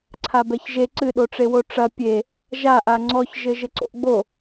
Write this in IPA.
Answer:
ǀʰ a b ɛ ç ʒ e ǀ ɨ ɗ o ʈ͡ʂ e w o ʈ͡ʂ ɐ pʲ e | ʒ a ʔ a ŋ͡ǀ ɔ ç ʒ ɘ ʒ ɘ ǀ o̰ ʔ ɡ͡b o

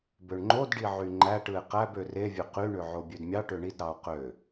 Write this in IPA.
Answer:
b ø ɳ ŋ͡ǃ o d ɖ i ʕ y ŋ͡ǃ æ ʈ ɯ e̯ q æ b ø r e vʲ ø q y ɳ ø ʕ o bʲ ø d mʲ ɑ ʈ ø ɳ i d ɾ ɑ o̯ q ø

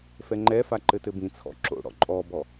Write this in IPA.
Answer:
f ɛ ŋ͡ǃ ɛ f a ǃ ɘ t ɘ b ĩ t͡sʰ ɔ̰ ǁ o̰ ɽ ɔ̰ ǃʼ ɔ b ɔ

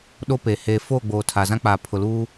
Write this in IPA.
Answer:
ɗ o˦ p eː˨ h eː˨ f oː˦˨ ɡ͡b oː˨ tʰ a˨ z ã˦ k͡p a˨ pʰ ʊ˨ l uː˦

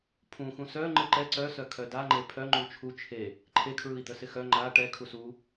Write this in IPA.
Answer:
pʰ ũ x ũ s œ ŋ͡ǃ ɯ ǃ ɛ ǀ œ s œ kʰ œ d a ŋ͡ǃ e pʰ œ ŋ͡ǃ u t͡ʃʰ u t͡ʃʰ e | ǃʰ e kʰ ɹ ɯ i̯ d̪ œ s ɪ x œ ŋ͡ǃ a ʈ ɛ kʰ u s u

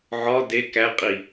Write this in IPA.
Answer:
ʕ ɒ d e k æ qʼ i

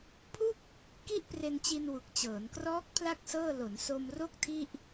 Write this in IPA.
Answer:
pʰ u˥˩ k̚ | k i˥˩ ʔ p r e˧ n t͡ɕ i˧ n w u˨˩ k̚ t͡ɕ ɤː˩˦ n k r ɔː˦˥ k̚ pʰ l a˦˥ k̚ s ɤː˥˩ l o˩˦ n s o˧ m r o˥˩ k̚ tʰ i˥˩ ʔ

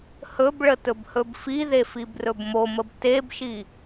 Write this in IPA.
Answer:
h ɵ b ɭ ə t ɵ b h ɵ b f i ð e f i b r ɵ b m o m ə b t e b ʃ i

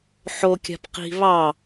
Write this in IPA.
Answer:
ħ o kʲ a̤ p q i̤ β ɑ

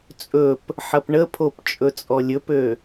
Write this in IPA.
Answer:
t͡sʼ ɵ p | ħ ɐ p ɳ ə pʰ o p t͡ʃʼ ɵ t͡sʼ ɔ lʲ ɵ p ø

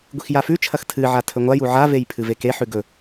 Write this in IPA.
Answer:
ɡʷ i x j a f ʉ t͡ʃʰ ɐ x tʰ ɨ ʕ a tʰ ɵ ŋʷ a j u ʕ a v e j pʰ ɨ v e k e ħ ʉ ɡ ɵ

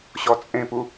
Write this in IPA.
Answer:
ɕ ɔ t͡sʼ ẽ p u

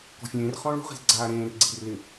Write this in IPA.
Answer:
k ɔ̤ fʲ ẽː r χ ɔ̃ ɭ o̤ ʁ i̤ z ɡ͡ǀ aː ɾ ẽː r ɡ͡ǀ i̤ r l ɪ

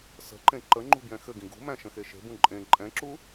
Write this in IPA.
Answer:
s ə̤ ǃ ẽ ǃ ə ŋ͡ǃ ṳ b j ɛ̃ x ɘ ɡ ĩ ɡ ṳ m æ̃ ʃ ə̃ x e ʃ e̤ b ũ ǃʼ ẽ ǃʼ ɛ̃ ǁ u

